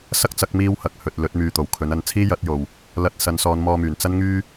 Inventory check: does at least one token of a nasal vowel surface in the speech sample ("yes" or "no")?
no